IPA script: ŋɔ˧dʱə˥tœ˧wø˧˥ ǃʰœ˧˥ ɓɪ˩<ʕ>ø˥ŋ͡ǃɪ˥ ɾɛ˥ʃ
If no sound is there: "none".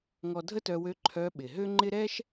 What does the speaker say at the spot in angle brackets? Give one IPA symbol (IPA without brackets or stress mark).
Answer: ɦ